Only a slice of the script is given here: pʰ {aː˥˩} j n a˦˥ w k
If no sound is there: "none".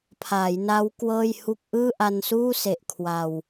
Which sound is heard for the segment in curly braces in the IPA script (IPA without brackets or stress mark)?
aː˩˦